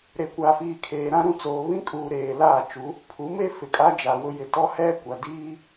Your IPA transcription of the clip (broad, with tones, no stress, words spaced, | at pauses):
ɾe˨kʷa˨fiː˨ kʰeː˨ɾã˦ɾũ˦˨t͡soː˨ βĩ˦kʼuː˨ ɾeː˨laː˦˨t͡ʃu˨˦ | pʰu˨˦me˦ fɪ˨kʼa˦d͡ʒa˨ wʊ˦jɪ˨ tɔ˦ hɛ˦ kʷa˨diː˦